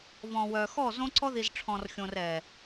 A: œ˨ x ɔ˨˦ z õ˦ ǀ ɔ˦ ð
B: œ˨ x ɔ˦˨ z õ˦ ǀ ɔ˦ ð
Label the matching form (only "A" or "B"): B